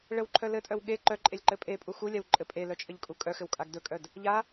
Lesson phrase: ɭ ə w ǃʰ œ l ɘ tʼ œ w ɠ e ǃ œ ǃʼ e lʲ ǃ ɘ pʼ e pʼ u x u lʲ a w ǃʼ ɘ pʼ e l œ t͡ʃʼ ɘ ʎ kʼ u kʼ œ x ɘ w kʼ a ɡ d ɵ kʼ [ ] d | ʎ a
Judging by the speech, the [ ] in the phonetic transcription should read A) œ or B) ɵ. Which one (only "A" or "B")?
A